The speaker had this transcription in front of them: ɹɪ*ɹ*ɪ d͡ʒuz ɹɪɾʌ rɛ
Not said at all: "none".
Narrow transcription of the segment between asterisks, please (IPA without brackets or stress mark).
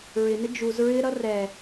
n